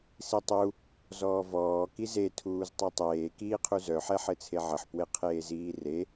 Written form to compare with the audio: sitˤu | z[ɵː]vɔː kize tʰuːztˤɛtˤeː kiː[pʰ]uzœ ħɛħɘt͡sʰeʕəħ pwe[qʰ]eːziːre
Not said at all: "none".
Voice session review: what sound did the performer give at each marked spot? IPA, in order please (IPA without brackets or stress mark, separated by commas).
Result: ɔː, qʰ, qʰ